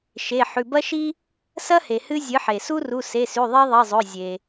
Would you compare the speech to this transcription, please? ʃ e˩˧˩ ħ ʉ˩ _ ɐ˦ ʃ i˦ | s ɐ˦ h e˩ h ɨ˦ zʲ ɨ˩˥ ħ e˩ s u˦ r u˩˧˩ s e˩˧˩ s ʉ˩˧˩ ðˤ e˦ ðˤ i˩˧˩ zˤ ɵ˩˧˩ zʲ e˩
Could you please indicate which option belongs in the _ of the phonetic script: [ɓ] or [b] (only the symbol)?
b